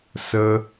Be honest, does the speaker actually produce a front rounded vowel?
no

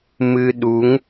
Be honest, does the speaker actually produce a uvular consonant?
no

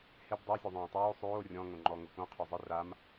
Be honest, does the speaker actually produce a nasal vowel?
yes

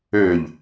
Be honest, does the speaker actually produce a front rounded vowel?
yes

